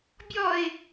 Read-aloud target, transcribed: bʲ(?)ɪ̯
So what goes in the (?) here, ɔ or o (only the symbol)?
ɔ